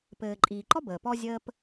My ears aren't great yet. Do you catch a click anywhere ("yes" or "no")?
yes